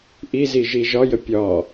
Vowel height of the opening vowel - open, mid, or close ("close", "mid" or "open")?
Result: close